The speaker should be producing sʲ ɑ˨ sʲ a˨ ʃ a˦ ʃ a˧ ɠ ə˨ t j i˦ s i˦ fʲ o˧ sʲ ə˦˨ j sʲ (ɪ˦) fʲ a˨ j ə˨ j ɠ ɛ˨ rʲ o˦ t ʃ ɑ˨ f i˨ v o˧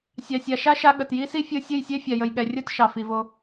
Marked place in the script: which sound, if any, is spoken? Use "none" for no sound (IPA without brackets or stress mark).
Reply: ɛ˦